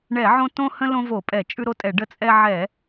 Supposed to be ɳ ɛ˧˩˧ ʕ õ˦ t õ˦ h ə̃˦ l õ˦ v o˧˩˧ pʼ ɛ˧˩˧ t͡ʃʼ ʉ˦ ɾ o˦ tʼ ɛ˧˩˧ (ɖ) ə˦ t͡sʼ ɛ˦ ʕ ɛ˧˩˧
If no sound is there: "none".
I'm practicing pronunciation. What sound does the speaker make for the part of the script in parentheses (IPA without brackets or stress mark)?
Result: ɖ